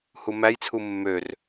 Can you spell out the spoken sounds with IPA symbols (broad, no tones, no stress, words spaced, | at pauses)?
humæjt͡sʰu mːør